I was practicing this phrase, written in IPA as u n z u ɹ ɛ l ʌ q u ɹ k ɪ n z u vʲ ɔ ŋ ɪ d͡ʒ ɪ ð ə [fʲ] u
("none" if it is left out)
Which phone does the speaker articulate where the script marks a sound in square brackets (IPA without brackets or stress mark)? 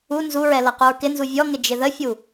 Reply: fʲ